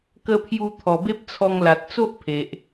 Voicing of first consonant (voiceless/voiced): voiceless